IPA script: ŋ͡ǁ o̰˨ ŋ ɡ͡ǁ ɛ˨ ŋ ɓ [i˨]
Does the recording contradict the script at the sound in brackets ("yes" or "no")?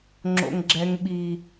no